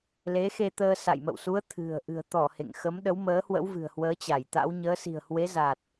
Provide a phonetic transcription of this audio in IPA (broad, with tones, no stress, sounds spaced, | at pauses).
l e˨˦ x e˧ t̪ əː˧ s a̰˧˨ j m ə̰˧˨ w s u˨˦ ə̯ t̪ʰ ɨ̤˨˩ ə̯ ʔ ɨ̤˨˩ ə̯ t̪ ɔ˧˩ h ḛ˧˨ ŋ x ə˨˦ m ɗ ə˨˦ w m əː˨˦ h w ə̰˧˥ w v ɨ̤˨˩ ə̯ h w əː˨˦ t͡ɕ a˧˩ j t̪ a̰˧˥ w ɲ əː˨˦ s i̤˨˩ ə̯ h w e˨˦ z a˨˩ t̚